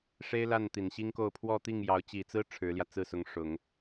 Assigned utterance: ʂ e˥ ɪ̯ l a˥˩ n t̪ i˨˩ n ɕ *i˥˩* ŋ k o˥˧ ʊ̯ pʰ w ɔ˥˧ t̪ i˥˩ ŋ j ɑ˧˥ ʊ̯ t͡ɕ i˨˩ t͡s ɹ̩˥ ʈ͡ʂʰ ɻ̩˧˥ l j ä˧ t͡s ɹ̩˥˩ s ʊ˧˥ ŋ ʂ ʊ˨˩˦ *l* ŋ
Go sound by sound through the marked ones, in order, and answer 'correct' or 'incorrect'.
incorrect: i˥, incorrect: none

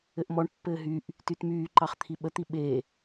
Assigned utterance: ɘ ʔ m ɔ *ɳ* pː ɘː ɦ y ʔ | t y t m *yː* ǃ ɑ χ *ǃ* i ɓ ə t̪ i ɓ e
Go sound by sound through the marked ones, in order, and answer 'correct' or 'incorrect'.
correct, correct, incorrect: t̪ʰ

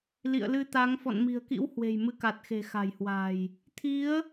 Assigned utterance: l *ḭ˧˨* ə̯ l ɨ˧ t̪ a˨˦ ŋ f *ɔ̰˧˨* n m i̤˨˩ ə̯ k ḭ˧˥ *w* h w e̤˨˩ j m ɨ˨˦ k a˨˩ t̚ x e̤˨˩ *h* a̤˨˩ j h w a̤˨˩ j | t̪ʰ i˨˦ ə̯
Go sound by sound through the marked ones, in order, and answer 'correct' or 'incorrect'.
correct, correct, correct, incorrect: x

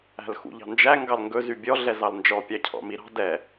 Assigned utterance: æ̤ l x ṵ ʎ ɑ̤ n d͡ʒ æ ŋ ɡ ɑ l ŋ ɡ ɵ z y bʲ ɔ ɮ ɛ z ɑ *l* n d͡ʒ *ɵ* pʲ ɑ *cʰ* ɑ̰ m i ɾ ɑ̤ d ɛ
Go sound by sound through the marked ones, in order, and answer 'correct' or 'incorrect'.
correct, incorrect: ɔ, correct

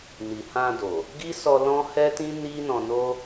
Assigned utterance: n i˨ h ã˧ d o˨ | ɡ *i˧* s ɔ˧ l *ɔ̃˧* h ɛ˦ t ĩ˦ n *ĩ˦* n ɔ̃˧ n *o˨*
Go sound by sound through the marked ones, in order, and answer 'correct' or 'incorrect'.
incorrect: i˦, incorrect: ɔ̃˦, incorrect: i˦, incorrect: o˦

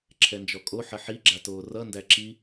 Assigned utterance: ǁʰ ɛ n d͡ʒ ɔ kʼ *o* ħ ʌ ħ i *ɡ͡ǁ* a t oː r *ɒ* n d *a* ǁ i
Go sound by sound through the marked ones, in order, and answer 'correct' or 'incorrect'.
correct, correct, incorrect: ʌ, incorrect: æ

